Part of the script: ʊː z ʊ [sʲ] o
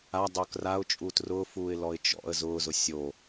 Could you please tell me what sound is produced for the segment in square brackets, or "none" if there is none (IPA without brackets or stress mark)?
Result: sʲ